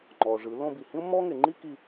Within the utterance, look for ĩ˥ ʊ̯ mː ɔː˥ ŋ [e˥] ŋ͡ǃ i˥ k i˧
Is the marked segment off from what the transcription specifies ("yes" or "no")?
yes